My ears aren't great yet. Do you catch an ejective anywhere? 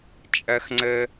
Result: yes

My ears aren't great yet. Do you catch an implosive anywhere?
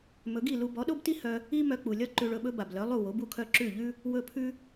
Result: yes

